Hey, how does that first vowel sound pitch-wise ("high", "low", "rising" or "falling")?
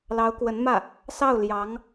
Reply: rising